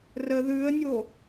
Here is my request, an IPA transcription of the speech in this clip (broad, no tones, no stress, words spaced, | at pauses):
rə ðʉə̯nʲo